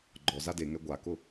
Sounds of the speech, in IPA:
ɡ͡ǃ ɔ z a d e ŋ ɛ ɡʷ a k ʊ

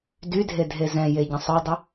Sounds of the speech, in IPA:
d y dʱ e dʱ e z ɛ̃ j e ɟ ə̃ sˤ œ dˤ ə

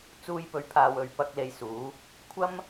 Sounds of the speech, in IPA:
t͡s uː˧ j p ɵ˨˥ ɥ pʰ aː˨ w ɵ˨ ɥ p ɐ˧ k̚ l e˧ j s uː˨˥ | kʷʰ ɐ˥ m

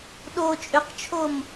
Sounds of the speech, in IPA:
ɗ o t͡ʃʼ ʏ q t͡ʃʰ o m

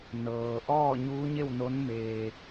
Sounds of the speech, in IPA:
n ɤː˩ ʔ ɔː˥˨ ɲ uː˧˥ ɲ e˥˨ w n o˧˥ n m eː˧

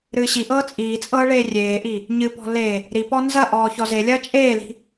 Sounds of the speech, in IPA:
ɾ ɨː ɕ i ʔ ɤː t͡sʼ iː t͡sʼ ɤː ɭ eː rʲ eː ʔ i | ɲ ɨ p ɔ̤ l e | ɾ i p ɔ n z ɐ ʔ ɔː ç ɔ z e lʲ ɐː t͡ʃʼ eː l i̤

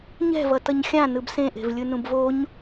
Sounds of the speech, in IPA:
ɲ ɛ̤ v ʌ t ʌ ɲ xʲ ã n ɯ b s ẽ ʔ e̤ v lʲ ɯ n ũ b v o ɲ

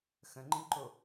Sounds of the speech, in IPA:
x ə̃ ŋ͡ǃ ĩ ǃ o

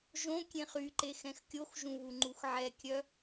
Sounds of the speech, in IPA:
ʒ õ kʲ ẽ χ y ǃ e x ɛ̃ x kʲ o x ʒ ũ β u ŋ͡ǃ u x ʕ ɛ kʲ œ

